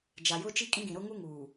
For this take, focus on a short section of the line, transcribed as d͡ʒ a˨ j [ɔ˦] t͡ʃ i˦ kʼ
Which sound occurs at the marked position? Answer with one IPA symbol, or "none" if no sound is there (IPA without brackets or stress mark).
ʊ˦